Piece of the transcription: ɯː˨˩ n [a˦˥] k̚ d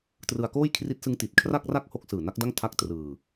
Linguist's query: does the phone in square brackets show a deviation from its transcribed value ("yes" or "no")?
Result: no